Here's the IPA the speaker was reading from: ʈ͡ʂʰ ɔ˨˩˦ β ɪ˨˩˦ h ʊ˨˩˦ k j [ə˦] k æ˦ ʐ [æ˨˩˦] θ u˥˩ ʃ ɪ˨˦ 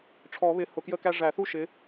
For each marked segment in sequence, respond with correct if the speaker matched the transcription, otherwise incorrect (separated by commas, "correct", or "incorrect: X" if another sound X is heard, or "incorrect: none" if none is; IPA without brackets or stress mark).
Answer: correct, correct